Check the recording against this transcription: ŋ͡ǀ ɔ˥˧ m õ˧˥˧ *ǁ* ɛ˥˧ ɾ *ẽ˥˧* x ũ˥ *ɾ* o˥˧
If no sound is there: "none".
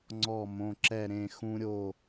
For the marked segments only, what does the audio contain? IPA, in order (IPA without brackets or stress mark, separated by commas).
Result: ǁ, ẽ˥˧, ɾʲ